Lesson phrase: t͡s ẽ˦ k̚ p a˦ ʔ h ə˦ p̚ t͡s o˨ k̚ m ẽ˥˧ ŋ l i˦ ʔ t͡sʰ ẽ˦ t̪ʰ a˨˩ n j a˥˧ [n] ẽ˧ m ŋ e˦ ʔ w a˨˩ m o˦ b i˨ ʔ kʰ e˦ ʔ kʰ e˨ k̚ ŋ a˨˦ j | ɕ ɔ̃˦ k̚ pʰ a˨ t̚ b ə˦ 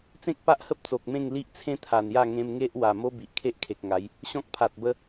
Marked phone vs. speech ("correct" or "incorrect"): incorrect